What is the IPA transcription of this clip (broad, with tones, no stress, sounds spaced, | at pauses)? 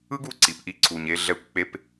ɯ˦ ɡ u˦˨ ǀ i˨ p ʔ i˧ ǀ u˨ ɲ e˧ ɮ ɛ˧ kʷ k͡p e˧ p